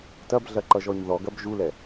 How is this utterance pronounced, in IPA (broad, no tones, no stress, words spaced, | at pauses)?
tɐbɮɐǃʌʒɔɲ ðɔɡɐb ʒulɛ